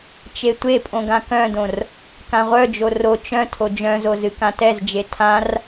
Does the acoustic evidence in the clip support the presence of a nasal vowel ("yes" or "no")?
yes